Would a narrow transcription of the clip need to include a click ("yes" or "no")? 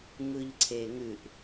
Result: yes